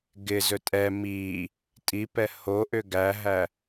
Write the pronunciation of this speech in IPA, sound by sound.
ɡ ɪ z ɵ tʼ ɛ m i | tʼ i p ɛ h o ʔ ʏ ɡ æ ɦ æ

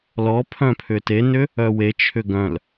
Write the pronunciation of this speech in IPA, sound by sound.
l ɔ pʰ œ̃ pʰ ʏ t e n ʏ | œ w e t͡ʃʰ ʏ ɡ œ̃ l

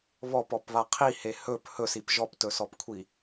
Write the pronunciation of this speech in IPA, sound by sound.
β ɔ p ɔ p β a qʰ i h e h ɵ p h ɵ s i p ʒ ɔ p t ɵ s ɔ p kʷʰ i

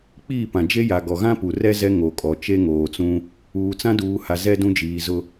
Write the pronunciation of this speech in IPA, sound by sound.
k͡p iː˦˨ p ã˨ d͡ʒ e˦ j a˨ ɡ ɔ˨ ɣ ã˦ p u˨ r ɛ˦ z ɛ˦ ŋ o˨ kʼ ɔ˨ t͡ʃ e˦ ŋ oː˨ t͡s ũ˦ | uː˨ t͡s ã˦ d uː˨ h a˨ z ɛ˦ d ũ˦ d͡ʒ iː˨ z ʊ˦

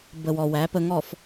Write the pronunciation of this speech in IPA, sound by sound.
b ə˨ w ɔ˨ w æ˨˦ p ə˨ ŋ ɔ˨ f

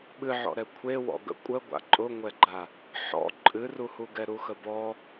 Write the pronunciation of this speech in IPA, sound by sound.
ɓ ɨ ʕ ɔ̰ ɾ ɛ kʷʰ e w ɔ̰ ɡ ə̰ kʷʼ ə ɡʷ a̰ ǃʼ ʊ ŋʷ ɛ ɡ͡ǃ a | ħ ɔ̰ ǃʼ ɨ r u h u ɡ ɛ ɾ u x ə b ɔ

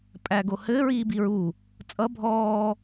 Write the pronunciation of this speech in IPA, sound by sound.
pʼ æ ɡ o h ɘː ɹ iː b i ɹ u | t͡sʼ ʌ bʱ ɔː

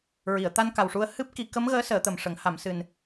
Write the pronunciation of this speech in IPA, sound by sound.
ɹ i˨˩˨ ə̯ t̪ a˧ n k a˨˩ w ʂ u˧ ə̯ h ɨ˦˥ p̚ k i˨˩˦ k ə˧˥ m ɣ əː˧˥ s əː˨˩˦ t̪ ə˨˩ m ʂ ə˨˩˦ ŋ h a˨˩˨ m s ɨ˨˩ n

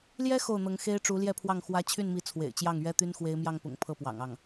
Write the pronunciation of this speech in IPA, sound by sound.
l j ɛ˥ x o˥˩ ʊ̯ n̪ ɤ˧˥ ŋ x e˥ ɪ̯ ʈ͡ʂ u˧˥ l j ɛ˥˧ pʰ w ɑ˥˩ ŋ x w ä˥ t͡ɕʰ y˥˩ n m i˧˥ t͡sʰ w ḛ˨˩ ɪ̯ t͡ɕ j ɑ˥˩ ŋ ɥ ɛ˥ t̪ y˥ n x w e˧˥ ɪ̯ m j ɑ˥˩ ŋ p ʊ̰˨˩ ŋ pʰ ɤ˥˩ p w ɑ̰˨˩ ŋ ɑ˥˩ ŋ

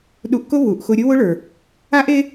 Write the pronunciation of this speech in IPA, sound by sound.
ɗ u˧ ʔ k ʊ˦ β u˨ ʔ x ʊ˧ ɾʲ ʊ˦ w ʊ˦ ɭ ə˞˨ | a˦ ʔ e˦

